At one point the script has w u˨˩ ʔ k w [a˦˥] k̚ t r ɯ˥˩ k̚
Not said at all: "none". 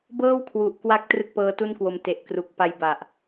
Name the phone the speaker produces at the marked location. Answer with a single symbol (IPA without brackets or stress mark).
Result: a˦˥